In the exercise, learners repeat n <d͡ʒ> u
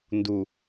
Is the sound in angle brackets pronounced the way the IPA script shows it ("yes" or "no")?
no